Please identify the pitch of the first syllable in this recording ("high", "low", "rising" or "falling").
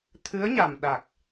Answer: rising